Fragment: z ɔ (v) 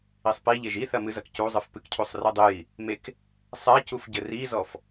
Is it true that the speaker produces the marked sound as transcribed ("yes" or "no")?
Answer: no